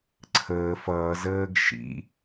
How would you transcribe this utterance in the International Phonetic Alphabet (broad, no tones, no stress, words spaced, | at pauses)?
ǀʰəː fʌːzəːɡ ʃḭ